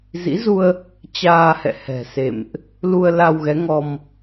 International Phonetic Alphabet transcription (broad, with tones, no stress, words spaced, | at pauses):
zḭ˧˥zu˧ə̯ | t͡ɕaː˧hɛ̰˧˨hɛ̤˨˩ sḛ˧˨mʔ | lu˧ə̯la˧w ɣɛ˨˦ŋɔ˧m